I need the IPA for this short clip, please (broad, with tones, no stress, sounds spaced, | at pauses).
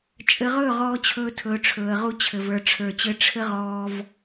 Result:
t͡ʃʼ ɘ˨ ʁ ɵː˦˨ ʁ ɔː˦ t͡ɕʰ ɵː˦ tʰ ɵː˨ ʈ͡ʂʰ ɵː˨ ə̯ ʁ u˦ t͡ɕʰ ɘ˨ v ə˞˨ ʈ͡ʂʰ ə˞˨ t͡ɕ ɘ˦ ʈ͡ʂʰ ɘ˦ ʁ ɔː˦ v